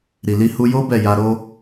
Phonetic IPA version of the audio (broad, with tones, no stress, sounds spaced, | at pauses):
ɾ i˨ l i˧ h u˧ j o˦ b ɛ˦˨ j a˧ ɾ o˦